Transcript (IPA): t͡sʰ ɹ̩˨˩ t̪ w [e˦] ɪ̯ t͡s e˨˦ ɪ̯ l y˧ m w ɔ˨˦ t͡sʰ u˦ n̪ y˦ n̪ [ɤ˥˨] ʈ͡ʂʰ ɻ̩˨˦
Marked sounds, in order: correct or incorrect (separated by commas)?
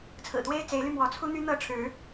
correct, correct